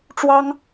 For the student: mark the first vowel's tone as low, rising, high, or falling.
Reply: high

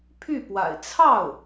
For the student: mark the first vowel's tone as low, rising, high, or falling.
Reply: falling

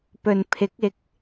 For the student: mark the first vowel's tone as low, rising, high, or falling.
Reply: low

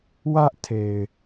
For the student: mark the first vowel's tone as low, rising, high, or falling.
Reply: high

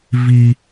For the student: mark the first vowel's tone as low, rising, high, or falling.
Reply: low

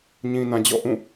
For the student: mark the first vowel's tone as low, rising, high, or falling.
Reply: low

